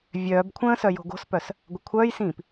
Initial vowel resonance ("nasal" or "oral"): oral